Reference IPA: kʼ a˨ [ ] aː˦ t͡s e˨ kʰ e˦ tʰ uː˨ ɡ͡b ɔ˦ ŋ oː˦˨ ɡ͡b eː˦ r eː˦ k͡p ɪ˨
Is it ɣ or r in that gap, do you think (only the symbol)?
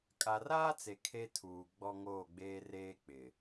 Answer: r